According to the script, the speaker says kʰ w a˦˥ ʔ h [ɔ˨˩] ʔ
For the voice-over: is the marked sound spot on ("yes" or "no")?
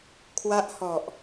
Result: yes